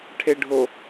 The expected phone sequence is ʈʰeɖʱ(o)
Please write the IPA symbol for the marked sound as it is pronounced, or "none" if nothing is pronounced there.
o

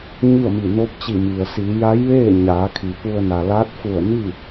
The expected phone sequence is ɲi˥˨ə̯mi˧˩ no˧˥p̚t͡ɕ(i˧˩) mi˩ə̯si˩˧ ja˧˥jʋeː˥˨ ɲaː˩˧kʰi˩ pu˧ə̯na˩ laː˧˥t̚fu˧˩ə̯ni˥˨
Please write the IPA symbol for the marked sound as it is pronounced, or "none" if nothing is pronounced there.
i˧˩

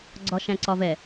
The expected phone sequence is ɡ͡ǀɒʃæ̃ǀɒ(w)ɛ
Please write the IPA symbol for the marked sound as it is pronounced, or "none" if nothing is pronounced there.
v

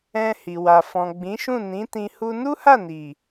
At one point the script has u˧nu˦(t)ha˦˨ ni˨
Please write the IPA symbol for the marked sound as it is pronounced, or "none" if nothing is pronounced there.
none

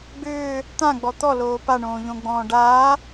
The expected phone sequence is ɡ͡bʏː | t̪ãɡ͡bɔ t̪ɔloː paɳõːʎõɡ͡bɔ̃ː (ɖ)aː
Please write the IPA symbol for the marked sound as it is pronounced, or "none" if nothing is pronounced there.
ɖ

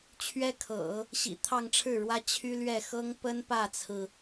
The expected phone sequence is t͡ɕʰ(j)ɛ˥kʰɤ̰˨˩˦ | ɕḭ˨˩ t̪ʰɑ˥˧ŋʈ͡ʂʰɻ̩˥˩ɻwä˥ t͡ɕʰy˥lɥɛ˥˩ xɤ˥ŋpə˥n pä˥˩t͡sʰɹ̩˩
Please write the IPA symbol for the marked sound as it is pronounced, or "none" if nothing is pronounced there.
ɥ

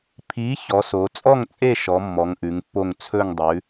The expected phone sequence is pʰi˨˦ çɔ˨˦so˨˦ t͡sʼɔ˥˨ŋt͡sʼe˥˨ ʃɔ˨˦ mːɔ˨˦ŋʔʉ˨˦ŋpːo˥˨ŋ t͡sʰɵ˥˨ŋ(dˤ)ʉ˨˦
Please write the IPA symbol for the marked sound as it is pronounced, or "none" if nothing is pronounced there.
dˤ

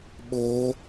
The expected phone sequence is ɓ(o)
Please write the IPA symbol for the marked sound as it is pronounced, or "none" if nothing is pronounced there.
o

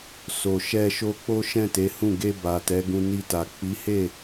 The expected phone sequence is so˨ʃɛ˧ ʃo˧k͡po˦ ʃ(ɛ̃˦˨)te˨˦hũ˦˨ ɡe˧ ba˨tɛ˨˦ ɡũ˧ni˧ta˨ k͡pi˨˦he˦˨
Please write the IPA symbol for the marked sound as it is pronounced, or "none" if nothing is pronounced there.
ɛ̃˦˨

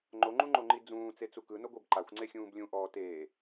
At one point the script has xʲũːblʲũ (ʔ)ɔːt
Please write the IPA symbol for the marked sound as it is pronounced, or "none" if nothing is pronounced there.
ʔ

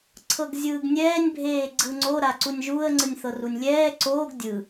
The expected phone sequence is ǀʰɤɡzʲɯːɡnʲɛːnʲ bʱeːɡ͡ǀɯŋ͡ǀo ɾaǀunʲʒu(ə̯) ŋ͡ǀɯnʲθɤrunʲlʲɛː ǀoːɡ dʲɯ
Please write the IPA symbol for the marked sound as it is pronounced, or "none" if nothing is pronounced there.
ə̯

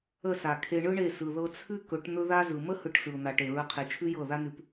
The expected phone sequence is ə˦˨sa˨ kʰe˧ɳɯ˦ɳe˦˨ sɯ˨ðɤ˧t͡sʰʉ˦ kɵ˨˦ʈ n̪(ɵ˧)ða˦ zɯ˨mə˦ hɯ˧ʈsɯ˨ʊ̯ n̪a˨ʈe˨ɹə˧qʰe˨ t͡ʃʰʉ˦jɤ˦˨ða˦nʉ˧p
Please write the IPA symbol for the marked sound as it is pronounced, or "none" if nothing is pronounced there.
ɵ˦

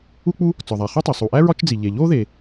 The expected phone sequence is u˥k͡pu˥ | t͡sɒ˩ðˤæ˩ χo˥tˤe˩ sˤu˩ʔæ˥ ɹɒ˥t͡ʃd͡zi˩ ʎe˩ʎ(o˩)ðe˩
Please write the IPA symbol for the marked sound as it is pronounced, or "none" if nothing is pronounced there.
o˥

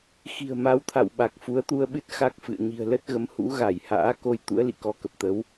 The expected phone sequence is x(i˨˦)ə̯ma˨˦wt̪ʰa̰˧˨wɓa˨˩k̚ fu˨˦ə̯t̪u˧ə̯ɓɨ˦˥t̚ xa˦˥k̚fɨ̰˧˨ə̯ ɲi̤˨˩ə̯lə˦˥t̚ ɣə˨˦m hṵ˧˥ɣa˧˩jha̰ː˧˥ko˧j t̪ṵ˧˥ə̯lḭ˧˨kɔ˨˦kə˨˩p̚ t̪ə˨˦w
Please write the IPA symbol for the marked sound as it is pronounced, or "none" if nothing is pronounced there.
i̤˨˩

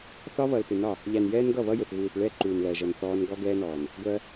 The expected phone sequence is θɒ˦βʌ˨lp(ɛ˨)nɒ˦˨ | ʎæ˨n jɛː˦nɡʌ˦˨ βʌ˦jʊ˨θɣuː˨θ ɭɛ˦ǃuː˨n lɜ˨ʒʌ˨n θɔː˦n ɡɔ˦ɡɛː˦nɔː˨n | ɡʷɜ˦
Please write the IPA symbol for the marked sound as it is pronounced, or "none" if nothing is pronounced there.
ɪ˨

